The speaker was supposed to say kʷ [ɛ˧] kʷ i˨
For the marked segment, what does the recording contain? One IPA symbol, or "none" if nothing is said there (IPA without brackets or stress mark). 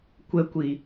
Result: ɛ˧